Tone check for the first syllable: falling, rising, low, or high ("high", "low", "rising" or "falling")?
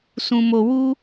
high